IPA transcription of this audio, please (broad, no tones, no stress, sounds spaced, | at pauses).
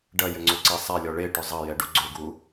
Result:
ɖ ɐ j ʏ ŋ͡ǀ ʏ ǀ e sˤ ɛ lʲ ɔ ɭ e ʈ ʏ zˤ ɐ j ɛ ɖ u ɡ͡ǀ ʏ ɡ u